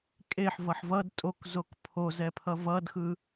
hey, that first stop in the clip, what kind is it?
ejective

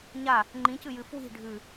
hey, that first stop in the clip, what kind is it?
click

